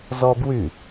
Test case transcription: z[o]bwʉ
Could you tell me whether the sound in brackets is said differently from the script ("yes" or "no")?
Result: yes